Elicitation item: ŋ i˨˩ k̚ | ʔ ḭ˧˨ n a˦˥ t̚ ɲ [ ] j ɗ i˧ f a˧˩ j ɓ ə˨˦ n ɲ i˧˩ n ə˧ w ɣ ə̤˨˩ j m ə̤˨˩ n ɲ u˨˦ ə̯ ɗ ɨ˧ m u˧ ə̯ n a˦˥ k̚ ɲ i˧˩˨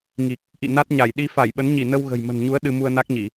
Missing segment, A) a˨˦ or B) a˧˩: B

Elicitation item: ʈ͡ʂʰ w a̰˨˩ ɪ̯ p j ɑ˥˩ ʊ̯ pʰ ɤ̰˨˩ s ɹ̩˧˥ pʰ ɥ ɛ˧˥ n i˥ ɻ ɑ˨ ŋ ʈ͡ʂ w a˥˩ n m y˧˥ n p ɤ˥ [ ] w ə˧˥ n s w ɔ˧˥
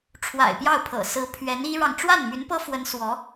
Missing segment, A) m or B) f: B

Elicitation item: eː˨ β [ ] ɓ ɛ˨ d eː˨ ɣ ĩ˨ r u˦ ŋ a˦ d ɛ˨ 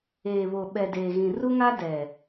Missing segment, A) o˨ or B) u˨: A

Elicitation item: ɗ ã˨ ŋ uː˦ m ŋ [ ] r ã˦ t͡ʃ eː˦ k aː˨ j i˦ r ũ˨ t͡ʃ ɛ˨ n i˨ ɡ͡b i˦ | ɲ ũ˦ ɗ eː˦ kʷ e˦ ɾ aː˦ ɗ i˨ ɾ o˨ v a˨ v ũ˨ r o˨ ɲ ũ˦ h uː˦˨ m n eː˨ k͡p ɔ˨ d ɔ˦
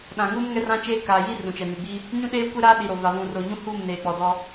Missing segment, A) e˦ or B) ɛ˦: B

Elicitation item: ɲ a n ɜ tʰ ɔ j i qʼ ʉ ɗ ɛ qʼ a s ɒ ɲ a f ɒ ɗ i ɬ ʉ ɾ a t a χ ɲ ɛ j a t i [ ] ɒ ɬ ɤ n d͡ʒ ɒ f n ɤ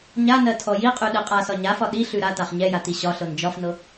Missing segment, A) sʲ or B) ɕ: B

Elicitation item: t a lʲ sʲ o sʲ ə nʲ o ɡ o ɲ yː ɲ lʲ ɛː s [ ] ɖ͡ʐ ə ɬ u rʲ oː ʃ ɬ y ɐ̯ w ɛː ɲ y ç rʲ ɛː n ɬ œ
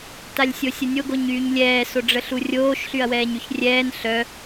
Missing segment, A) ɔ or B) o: B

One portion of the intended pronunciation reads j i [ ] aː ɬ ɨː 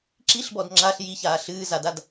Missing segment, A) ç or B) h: A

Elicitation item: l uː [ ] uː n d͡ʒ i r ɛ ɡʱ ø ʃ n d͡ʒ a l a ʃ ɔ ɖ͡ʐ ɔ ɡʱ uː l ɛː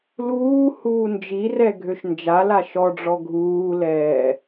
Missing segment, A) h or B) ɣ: A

